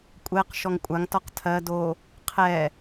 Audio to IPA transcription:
kʷʼ ɛ q ʃ ɔ ŋ kʷʼ a ŋ t ɔ q tʰ ɜ d o | qʰ ɛ

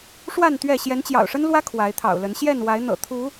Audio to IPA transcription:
ʂ w a˥˨ n t̪ ɥ ɛ˥˨ ɕ j ɛ˨˦ n t͡ɕ j ɑ̰˨˩ ʊ̯ ʂ ə˦ n l w ä˦ kʰ w a˨˦ ɪ̯ t̪ʰ ɑ̰˨˩ ʊ̯ l ə˨˦ n ɕ j ɛ˥˨ n w a˨˦ ɪ̯ n̪ ɤ̰˨˩ t̪ʰ u˨˦

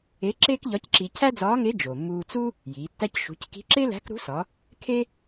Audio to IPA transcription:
e˧˥ ǁ eː˥ k ʎ ɒ˧˥ c ǁ i˧ cʰ æ˥ d͡z ɒː˧˥ ŋ e˧˥ d͡ʒ o˩ mː uː˧ t͡s u˥ | j iː˩˧ tː æ˥ c ʃ ṳ˩˧ c k i̤˧˥ ǁ e˥ l æ̤˧˥ k ɾ ṳ˧˥ s ɒ˩˧ | kʰ e˥

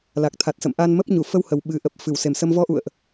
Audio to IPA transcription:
l a˨˩ k̚ t̪ʰ a˨˩ t̚ s ə̰˧˨ m ʔ a˧ n m ə˦˥ p̚ ɲ u˧˩ f ə˧ w h ə˨˩ w ɓ ɨ˨˩ ʔ ə˨˩ p̚ f ɨ˧˩ w s e˨˩ m s ə˧ m v ɔ˧ ʔ ṵ˧˨ ə̯ ʔ

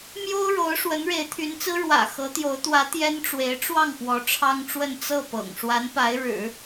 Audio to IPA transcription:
m j o˥ ʊ̯ ɻ o˧˥ ʊ̯ ʂ w ə˧˥ n ɻ e˧˥ ɪ̯ t̪ʰ y˧˥ n t͡s ɹ̩˥ ɻ w ä̰˨˩ x ɤ˧˥ t̪ j o˧˥ ʊ̯ t̪ w ä˧˥ t̪ j ɛ˥ n ʈ͡ʂ w e˧˥ ɪ̯ ʈ͡ʂ w ɑ˥˩ ŋ p w ɔ˧˥ ʈ͡ʂʰ ɑ˥ ŋ ʈ͡ʂ w ə˥˧ n t͡s ɤ˥˩ p ɤ̰˨˩ ŋ ʂ w a˧˥ n p a˧˥ ɪ̯ ɻ ɻ̩˨˩˦

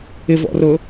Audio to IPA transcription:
ɪ v ɔ̰ r ʊ

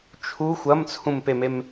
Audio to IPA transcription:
t͡ʃʰ u xʷ ɐ m t͡sʰ ũ m p e m e m

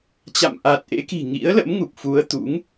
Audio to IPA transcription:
t͡ɕ a̰˧˨ m ʔ aː˨˩ t̚ ʔ ḛ˧˥ k i̤˨˩ ŋ ḭ˧˥ ə̯ l ə̰˧˥ m ŋ u˨˩ p̚ f u˨˦ ə̯ t̪ ṵ˧˥ ŋ

